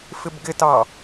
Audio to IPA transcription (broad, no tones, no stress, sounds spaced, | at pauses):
f ɪ b ɡ ɪ t ɑ